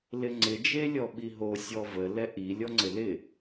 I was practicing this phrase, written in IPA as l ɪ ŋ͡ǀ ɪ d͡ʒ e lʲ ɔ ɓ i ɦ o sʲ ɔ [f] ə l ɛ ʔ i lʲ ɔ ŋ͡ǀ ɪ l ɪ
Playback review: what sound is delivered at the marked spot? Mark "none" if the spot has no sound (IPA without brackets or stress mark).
v